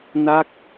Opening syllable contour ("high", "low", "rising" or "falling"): falling